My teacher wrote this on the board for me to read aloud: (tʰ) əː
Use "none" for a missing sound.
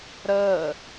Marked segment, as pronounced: ɾ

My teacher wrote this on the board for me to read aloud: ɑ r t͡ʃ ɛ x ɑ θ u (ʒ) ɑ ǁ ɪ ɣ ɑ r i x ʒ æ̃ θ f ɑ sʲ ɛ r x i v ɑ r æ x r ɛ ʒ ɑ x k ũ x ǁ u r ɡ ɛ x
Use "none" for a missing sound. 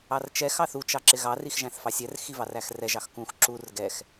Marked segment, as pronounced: t͡ʃ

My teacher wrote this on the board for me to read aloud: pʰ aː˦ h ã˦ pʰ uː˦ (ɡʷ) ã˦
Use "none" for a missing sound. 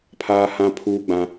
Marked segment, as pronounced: ɡ͡b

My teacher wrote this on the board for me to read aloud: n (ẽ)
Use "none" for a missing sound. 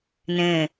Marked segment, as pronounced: ẽ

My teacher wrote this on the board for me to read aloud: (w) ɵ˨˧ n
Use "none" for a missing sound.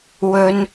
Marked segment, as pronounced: w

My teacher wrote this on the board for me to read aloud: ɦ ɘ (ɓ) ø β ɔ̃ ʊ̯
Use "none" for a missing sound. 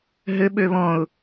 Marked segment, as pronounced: ɓ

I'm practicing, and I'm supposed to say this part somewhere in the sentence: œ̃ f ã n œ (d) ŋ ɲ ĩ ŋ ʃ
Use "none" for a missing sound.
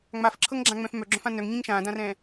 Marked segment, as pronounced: none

